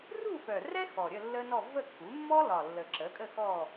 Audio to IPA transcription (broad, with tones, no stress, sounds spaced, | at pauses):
r u˥˧ f œ˨˩ r ɛ˥ x ɔ˨˩ ɾʲ ə˥˧ lː ə˥ n ɔ˥˧ v ə˥˧ kː u˩˥ mː ɔ˥ l ɒ˨˩ lː ə˨˩ ǁ ə˩˥ kʼ ə˥˧ x ɔ˥˧